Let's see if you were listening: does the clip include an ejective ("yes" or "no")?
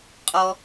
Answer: yes